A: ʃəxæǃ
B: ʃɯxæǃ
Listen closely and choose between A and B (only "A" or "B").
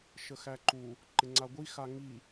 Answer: A